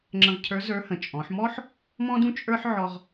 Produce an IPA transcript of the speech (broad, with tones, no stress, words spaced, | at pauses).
ŋ͡ǁə̃˧ʁcʰə˞˧˥ zə˞˧˥ hə̃˩˧t͡ʃʼɔ̃˩˧ħmɔ˥ħ | mɔ̃˥dũ˥ t͡ʃʼə˞˥ħ ʕɔ˧ʁ